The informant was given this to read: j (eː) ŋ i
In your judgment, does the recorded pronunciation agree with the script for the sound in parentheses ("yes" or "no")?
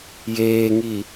yes